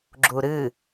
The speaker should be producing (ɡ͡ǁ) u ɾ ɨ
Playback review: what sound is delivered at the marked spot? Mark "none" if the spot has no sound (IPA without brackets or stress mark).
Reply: ɡ͡ǁ